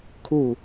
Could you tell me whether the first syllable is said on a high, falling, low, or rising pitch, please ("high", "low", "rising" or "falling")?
low